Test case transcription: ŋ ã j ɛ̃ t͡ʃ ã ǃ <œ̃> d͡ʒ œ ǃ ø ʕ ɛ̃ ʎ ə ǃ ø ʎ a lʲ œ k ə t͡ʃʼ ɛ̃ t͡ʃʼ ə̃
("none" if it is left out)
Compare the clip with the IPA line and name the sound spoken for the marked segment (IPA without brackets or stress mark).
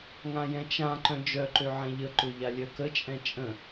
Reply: œ̃